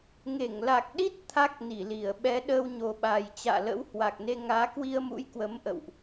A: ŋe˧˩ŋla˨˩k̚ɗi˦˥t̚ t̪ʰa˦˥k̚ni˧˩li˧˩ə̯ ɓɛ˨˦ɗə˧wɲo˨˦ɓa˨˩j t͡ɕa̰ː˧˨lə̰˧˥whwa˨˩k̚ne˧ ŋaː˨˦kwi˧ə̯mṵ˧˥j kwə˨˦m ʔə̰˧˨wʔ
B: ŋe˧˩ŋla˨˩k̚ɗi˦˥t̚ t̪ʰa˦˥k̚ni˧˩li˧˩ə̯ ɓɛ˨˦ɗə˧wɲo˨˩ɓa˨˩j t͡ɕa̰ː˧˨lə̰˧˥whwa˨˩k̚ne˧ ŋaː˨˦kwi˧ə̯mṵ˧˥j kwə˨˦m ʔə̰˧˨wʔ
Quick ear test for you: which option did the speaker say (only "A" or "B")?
B